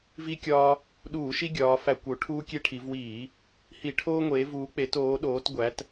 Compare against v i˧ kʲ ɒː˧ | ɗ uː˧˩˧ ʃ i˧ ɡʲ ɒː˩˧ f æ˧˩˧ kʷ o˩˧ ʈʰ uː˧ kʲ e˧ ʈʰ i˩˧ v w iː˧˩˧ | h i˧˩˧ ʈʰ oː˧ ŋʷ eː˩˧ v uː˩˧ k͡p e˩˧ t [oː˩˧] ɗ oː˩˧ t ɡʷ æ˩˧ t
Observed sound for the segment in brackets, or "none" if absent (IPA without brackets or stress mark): oː˩˧